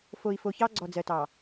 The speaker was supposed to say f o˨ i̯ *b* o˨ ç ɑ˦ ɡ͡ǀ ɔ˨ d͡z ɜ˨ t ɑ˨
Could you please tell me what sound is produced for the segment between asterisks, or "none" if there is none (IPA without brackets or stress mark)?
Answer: f